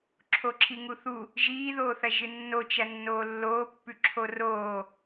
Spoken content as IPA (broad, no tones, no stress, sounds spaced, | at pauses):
ǁʰ o ǁʰ i ŋ u θ u | ʒ iː ð oː θ ɐ ʒ ɨ nː o t͡ʃ ɐ nː oː lː oː pː ʉ ǁʰ o r oː